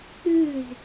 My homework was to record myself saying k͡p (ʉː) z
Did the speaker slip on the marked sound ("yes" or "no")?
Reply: no